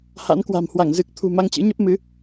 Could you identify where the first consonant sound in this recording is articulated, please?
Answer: glottal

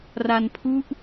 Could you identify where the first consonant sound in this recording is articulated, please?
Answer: alveolar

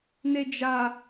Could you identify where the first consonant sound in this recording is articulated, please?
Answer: alveolar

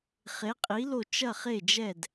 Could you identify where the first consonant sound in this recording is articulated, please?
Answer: uvular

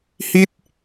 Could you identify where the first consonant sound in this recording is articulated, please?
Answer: glottal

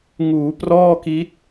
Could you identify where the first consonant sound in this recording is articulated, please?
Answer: velar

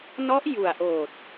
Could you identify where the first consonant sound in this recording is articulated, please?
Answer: alveolar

